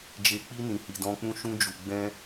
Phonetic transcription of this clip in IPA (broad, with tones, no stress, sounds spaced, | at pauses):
d͡ʒ e˨ k͡p i˧ n ĩ˨ h i˨ d ɔ̃˧ k͡p ũ˦ ʃ ũ˧ d͡ʒ u˨ ɡ͡b ɛ̃˧